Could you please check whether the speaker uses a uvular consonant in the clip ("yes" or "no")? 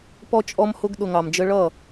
no